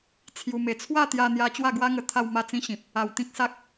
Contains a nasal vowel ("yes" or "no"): yes